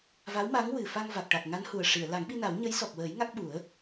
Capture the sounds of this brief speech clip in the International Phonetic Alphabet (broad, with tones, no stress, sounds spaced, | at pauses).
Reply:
v a˧˥ w m a˧˥ ŋ w ɨ˨˩ f a˧ ŋ v a˨˩ k̚ ʈ a˨˩ k̚ ŋ a˧˥ n h u˨˩ ə̯ ʂ i˨˩˨ ə̯ l a˨˩˦ ŋ ɓ i˧ n a˨˩˦ w ɲ ə˧˥ j s ɔ˨˩ k̚ w əː˨˩˦ j ŋ a˦˥ k̚ ɓ u˨˩˦ ə̯